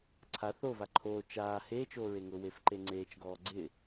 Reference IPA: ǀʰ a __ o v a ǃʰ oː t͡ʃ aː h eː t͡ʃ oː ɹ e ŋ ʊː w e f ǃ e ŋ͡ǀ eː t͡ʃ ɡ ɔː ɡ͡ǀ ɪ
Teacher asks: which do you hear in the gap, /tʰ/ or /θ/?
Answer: θ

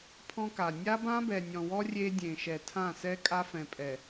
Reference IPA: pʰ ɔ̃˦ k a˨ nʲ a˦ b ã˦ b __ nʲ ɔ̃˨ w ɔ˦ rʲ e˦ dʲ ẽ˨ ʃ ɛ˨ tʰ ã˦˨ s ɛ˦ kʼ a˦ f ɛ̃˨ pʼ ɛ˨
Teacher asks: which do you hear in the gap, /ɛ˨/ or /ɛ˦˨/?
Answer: ɛ˨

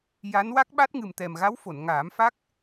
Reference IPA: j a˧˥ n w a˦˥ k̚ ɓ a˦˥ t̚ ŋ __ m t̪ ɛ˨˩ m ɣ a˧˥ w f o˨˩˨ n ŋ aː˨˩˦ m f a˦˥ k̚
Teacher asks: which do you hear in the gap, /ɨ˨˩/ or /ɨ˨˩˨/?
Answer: ɨ˨˩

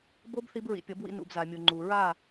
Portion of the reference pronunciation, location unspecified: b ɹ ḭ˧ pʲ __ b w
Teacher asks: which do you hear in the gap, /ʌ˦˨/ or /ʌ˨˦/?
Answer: ʌ˨˦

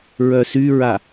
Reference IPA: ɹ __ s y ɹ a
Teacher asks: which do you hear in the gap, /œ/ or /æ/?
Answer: œ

